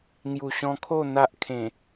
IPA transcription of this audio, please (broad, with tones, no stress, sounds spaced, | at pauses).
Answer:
ŋ j u˨˩ ɕ ɔ̃˧ kʰ o˥˧ n̪ a˦ ʔ kʰ ẽ˨˩